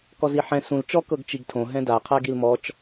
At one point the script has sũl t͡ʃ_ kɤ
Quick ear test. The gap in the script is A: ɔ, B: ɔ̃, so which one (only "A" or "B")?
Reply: A